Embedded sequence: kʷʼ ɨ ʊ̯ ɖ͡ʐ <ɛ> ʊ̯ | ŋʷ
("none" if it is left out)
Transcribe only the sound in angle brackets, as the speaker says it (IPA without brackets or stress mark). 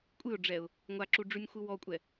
ɛ